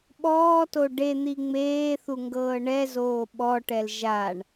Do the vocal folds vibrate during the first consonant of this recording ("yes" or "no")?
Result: yes